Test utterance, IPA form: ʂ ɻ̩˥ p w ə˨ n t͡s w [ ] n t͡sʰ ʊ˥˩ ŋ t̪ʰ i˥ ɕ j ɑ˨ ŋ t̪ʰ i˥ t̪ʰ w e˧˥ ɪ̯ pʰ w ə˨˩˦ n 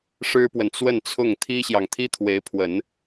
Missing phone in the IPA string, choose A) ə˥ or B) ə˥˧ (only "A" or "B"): B